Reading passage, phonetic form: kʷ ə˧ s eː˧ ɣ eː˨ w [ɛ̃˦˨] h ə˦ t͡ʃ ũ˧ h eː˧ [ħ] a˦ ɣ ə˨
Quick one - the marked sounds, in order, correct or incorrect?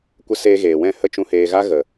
correct, incorrect: ɣ

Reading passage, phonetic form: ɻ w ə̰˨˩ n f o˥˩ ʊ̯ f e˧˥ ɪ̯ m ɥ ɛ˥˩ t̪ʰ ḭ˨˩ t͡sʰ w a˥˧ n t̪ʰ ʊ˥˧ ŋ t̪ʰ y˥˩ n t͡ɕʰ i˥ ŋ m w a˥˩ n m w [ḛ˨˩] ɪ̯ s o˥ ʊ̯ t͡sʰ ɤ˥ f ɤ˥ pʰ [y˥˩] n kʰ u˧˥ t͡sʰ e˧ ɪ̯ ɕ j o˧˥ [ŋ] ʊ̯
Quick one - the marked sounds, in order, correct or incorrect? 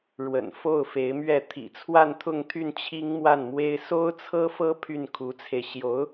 incorrect: e˥, correct, incorrect: none

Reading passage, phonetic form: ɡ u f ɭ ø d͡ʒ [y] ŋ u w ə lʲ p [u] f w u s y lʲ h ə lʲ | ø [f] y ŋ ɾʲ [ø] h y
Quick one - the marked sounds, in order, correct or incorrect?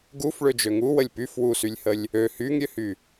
incorrect: ø, incorrect: y, incorrect: h, correct

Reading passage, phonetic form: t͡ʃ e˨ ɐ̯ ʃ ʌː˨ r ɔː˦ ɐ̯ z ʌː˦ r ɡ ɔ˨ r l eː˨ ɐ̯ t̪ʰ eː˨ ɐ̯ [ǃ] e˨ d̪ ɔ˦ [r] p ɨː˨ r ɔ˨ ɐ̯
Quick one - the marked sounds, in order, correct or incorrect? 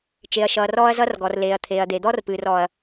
incorrect: d̪, correct

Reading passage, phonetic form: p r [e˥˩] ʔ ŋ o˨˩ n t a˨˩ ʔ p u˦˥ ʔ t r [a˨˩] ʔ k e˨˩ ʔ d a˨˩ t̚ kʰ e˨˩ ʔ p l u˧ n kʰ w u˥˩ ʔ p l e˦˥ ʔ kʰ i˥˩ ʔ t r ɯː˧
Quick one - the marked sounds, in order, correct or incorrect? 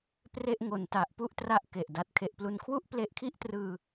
correct, incorrect: a˦˥

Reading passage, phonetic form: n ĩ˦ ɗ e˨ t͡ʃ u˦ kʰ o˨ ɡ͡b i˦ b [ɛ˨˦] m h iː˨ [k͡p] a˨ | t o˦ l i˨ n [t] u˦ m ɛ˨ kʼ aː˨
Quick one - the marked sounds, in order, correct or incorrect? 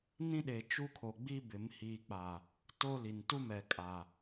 incorrect: ɪ˨˦, correct, correct

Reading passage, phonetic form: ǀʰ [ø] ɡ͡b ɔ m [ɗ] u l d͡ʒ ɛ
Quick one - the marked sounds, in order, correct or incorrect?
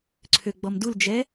correct, incorrect: d

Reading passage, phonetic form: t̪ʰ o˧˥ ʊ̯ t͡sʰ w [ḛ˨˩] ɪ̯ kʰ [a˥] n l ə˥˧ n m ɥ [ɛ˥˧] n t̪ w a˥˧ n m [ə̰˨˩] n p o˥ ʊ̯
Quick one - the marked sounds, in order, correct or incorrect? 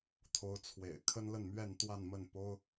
correct, incorrect: ə˥, correct, incorrect: ə˥˩

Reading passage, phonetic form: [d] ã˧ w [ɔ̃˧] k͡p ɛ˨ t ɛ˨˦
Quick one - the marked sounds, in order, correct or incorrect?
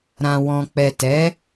incorrect: ɾ, correct

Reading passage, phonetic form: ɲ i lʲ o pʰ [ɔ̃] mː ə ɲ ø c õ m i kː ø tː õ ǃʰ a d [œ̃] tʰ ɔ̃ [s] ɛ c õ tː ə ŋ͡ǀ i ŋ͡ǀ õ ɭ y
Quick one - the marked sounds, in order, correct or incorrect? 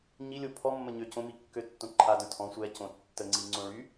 incorrect: ɔ, correct, incorrect: sʷ

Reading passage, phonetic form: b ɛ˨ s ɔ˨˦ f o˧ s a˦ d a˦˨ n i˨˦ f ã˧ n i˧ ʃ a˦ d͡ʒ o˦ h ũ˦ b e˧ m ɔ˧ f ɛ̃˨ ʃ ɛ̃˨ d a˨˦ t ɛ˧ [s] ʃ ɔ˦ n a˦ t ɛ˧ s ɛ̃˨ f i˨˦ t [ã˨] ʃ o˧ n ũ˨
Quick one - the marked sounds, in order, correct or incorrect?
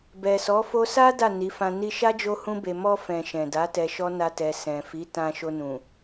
incorrect: none, incorrect: ã˧

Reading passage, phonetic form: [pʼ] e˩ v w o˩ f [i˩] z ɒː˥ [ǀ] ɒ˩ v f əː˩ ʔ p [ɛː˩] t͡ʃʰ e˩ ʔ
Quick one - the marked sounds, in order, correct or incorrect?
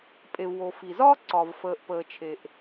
correct, correct, correct, incorrect: əː˩

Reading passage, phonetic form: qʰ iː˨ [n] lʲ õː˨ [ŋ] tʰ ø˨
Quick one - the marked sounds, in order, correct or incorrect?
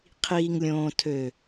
incorrect: ŋ, incorrect: none

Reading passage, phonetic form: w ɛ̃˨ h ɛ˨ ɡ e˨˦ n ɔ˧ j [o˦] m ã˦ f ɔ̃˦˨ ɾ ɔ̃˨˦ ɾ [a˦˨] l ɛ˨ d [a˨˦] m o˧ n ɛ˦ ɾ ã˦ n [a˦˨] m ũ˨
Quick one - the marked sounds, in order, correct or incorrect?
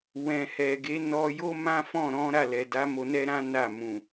correct, correct, correct, correct

